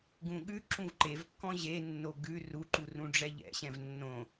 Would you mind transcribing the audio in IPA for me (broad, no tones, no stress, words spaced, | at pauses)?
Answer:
ɡũɠʉ ǁũvǃevkːɔ̃ ʑenːo ɡʉ ruǃurũ ɖ͡ʐɛʎɛ̰ɕɛ̃v nːõ